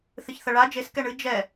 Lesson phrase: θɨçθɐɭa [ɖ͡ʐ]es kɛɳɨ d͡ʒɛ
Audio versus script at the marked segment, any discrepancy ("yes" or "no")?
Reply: yes